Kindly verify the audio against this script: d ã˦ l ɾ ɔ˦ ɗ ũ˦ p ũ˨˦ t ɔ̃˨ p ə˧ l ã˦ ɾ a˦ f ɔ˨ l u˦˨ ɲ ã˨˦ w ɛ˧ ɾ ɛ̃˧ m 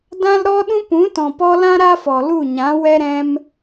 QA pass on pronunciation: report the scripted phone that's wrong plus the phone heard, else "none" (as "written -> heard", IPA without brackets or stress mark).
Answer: ə˧ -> ɔ˧